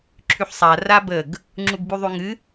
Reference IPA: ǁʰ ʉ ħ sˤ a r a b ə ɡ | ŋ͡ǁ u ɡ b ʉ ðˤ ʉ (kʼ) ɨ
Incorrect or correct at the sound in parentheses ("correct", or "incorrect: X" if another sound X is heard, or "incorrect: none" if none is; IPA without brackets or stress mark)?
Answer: incorrect: ŋ